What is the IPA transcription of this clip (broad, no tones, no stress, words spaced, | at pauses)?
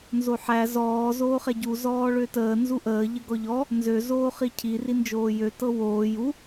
nzoħæ zɔː zoːχɛɟu zɔːɭøtəː nzuʔəː ʎəɡɔʎɔ | nzø zoːχicʰi rind͡ʒoːjø tɤwoː ju